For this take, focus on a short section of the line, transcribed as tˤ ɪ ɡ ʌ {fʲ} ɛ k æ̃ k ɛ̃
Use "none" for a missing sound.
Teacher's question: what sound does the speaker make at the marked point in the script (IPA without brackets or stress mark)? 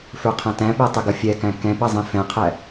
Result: fʲ